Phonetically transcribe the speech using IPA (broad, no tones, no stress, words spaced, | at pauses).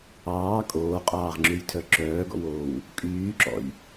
ɑː kʼoːqʼɑːʁŋ͡ǁʉjtʰœ ǁœːɡɔ̰woːw | kʼyːǁɔ̰j